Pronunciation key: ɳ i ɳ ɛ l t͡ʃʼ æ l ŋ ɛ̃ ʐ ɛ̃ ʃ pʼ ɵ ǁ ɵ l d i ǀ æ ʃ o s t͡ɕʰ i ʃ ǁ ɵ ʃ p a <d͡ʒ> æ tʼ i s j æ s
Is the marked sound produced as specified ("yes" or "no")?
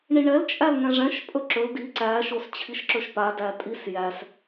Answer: no